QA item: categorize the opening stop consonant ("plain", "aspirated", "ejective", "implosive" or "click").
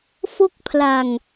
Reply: plain